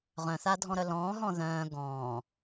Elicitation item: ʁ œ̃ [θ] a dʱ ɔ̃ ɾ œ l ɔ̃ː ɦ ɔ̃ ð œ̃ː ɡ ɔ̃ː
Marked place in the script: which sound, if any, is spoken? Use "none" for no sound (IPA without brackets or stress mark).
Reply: θ